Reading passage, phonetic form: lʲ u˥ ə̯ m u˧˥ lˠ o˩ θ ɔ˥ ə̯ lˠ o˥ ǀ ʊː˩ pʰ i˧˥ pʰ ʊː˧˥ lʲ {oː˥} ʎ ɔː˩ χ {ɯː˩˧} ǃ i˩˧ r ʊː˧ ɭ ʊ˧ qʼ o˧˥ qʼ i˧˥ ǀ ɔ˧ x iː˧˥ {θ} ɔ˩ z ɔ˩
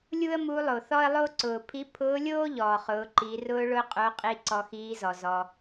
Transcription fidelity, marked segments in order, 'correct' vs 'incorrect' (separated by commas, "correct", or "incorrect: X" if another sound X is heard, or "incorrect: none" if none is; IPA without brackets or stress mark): correct, incorrect: ʊː˩˧, incorrect: z